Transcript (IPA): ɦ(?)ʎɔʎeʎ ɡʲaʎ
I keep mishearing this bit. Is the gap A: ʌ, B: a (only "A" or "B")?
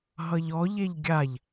A